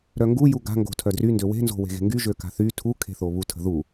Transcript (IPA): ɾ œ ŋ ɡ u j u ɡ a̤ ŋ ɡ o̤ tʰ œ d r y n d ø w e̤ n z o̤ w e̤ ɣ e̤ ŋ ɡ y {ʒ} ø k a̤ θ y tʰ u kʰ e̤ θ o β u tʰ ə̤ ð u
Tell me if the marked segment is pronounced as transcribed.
yes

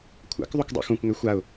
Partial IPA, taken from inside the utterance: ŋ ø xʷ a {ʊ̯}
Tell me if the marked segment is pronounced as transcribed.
yes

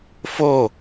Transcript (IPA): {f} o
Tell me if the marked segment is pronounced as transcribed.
yes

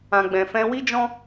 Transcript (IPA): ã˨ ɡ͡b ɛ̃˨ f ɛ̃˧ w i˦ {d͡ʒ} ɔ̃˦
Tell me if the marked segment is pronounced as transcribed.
yes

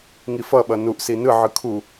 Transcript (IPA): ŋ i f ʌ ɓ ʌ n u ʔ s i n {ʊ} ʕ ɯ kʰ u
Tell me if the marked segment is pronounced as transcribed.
no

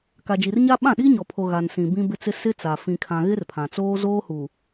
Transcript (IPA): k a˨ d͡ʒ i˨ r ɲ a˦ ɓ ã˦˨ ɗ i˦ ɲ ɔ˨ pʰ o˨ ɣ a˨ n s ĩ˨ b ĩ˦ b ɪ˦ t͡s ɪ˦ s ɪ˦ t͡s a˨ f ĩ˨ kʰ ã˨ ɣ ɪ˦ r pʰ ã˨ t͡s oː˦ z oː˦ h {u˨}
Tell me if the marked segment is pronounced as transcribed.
yes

